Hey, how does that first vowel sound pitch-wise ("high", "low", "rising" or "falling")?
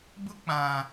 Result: high